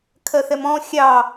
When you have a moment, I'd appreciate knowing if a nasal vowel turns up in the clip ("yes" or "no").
yes